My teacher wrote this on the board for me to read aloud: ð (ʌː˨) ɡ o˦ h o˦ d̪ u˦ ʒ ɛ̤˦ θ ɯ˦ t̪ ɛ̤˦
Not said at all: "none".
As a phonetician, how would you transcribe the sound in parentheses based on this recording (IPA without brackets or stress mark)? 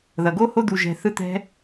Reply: ʌ˨